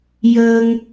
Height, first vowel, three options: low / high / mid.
mid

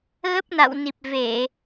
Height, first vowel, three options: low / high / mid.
mid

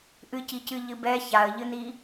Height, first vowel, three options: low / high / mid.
high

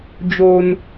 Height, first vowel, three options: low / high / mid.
mid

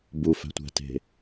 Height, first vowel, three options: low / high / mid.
high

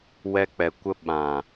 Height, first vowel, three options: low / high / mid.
mid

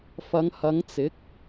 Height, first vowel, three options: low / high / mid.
low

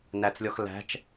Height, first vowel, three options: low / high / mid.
low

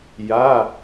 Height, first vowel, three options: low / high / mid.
low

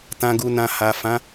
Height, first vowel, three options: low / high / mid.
low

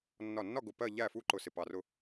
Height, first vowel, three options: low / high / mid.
low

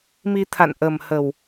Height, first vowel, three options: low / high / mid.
high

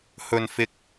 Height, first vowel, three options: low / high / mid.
mid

